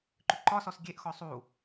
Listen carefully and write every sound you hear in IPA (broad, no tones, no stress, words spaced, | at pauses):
ǃʏǃɒsɔs ɡʲeʔxɔ sˤu